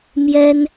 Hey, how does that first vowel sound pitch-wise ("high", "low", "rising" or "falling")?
high